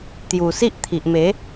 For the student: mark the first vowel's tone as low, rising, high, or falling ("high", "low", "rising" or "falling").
low